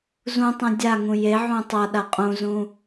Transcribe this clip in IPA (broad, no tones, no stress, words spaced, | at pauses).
zũtˤɛ̃ dʲaŋũ jeʕũ tˤaɗa qʼũzũ